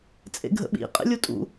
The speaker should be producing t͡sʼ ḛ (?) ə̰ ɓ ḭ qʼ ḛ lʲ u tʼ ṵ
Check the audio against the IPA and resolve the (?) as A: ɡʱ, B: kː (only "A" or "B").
A